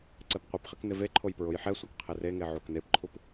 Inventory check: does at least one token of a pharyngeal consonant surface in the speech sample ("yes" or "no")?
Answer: yes